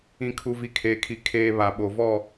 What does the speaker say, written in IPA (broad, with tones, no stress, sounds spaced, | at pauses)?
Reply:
ĩ˨ kʰ u˨ v i˨ kʰ eː˨ kʰ i˨ kʰ eː˦ β a˨ ɓ o˨ v ɔ˦˨